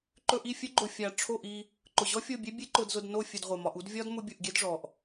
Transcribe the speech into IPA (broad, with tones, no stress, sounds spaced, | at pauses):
ǃ ɵ˧ ʔ i˦˨ fʲ ɵ˦ ɡ͡ǃ ʊ˧ fʲ a˧ ʈ͡ʂʰ o˦˨ ʔ i˧ | ǃ ʊ˨ ʑ ɔ˦ fʲ o˦˨ bʲ e˦ bʲ e˦ ǃ ʊ˧ d z ʊ˧ d n o˦˨ fʲ ɵ˧ d ʁʷ e˨ m ɒ˧ ʔ u˦ d vʲ ɒ˦ d m ʊ˦ bʲ u˧ ʔ ɡʲ e˦ d ʐ ɔ˨ ʔ